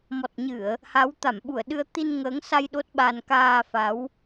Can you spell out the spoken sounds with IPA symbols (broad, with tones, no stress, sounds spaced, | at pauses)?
m ɔ˨˩ t̚ ɲ ɨ˧˩˨ ə̯ | h a˨˦ w t̪ a˧˩ m ɓ u˧˩ ə̯ ɗ ɨ˧ ə̯ t̪ i˧ n ŋ əː˨˦ ŋ s a˧ j ɗ o˦˥ t̚ ɓ a˧ n k aː˧ f a˨˦ w